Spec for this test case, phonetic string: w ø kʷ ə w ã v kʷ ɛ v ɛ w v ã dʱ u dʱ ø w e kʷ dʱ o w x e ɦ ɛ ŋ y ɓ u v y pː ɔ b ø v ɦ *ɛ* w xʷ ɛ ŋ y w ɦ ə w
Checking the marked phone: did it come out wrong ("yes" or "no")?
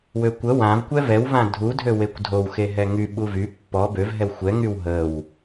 no